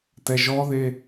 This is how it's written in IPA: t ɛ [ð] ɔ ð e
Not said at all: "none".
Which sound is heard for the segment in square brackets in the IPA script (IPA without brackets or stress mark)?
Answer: ʒ